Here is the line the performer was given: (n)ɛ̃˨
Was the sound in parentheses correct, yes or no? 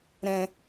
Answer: no